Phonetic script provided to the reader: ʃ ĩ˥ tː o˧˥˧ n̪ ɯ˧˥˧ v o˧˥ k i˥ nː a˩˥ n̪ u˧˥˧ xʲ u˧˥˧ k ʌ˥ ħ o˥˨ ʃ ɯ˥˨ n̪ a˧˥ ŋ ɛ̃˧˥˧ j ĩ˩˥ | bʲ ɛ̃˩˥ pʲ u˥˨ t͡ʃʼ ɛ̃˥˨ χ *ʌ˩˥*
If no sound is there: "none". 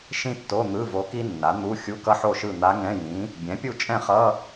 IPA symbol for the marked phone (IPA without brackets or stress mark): ʌ˧˥˧